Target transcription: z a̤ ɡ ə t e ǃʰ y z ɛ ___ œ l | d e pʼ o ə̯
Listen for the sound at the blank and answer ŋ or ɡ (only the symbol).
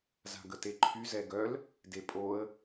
ɡ